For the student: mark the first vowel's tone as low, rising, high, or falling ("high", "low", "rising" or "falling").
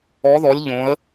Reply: rising